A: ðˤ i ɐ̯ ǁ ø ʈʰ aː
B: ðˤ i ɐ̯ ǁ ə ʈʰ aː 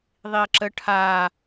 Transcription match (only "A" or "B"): B